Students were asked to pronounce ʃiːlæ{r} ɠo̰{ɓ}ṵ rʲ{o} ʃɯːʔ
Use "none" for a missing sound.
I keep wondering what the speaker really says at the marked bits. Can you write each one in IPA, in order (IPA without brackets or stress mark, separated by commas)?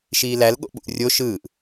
l, ɓ, o